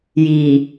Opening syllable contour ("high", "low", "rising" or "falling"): low